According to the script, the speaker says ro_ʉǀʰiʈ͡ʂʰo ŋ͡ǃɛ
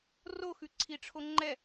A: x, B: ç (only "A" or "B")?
A